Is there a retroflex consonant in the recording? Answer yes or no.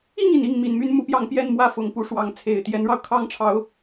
yes